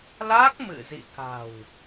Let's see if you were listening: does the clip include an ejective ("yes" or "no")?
no